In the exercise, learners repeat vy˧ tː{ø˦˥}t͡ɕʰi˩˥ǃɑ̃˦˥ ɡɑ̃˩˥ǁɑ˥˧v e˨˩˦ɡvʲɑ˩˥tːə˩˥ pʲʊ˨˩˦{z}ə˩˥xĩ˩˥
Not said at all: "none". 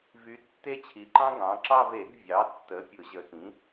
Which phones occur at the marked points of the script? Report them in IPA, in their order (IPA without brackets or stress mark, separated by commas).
e˦˥, ʑ